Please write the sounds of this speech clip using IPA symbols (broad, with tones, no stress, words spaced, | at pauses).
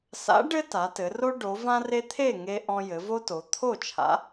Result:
sa̰˨˥ɖɘ˦ ta˩˧tɘ˩˧ro˦ ɖo˩˧ vã˦re˦t̪ʰe˥˨ ŋe˦ ʔɔ̃˦ jɘ˩˧vo˦to˩˧ t̪ʰo˥˨t͡ʃʰa̰˨˥